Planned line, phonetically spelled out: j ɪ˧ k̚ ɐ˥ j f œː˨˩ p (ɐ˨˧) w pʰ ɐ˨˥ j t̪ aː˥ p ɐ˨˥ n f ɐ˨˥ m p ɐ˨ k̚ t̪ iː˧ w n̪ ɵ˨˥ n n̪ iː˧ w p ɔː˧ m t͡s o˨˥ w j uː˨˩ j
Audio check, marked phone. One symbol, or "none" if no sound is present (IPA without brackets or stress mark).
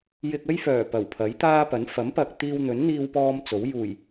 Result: ɐ˨˩